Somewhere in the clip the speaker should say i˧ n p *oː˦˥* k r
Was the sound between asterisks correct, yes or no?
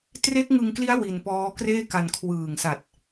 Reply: no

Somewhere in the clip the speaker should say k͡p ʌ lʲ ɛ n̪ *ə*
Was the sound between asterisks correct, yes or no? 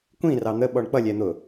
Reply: no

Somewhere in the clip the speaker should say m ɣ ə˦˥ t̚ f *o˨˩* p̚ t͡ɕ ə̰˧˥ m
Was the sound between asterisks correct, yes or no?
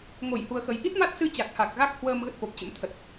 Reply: yes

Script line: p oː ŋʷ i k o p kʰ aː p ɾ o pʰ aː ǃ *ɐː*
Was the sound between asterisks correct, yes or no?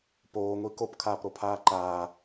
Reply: no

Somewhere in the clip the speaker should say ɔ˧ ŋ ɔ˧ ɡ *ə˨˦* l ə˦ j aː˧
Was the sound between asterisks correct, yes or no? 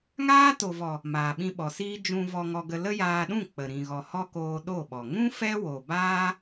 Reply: no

